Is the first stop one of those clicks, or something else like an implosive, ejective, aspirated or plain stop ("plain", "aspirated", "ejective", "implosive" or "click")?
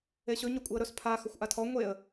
ejective